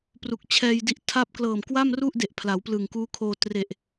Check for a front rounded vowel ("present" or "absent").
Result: absent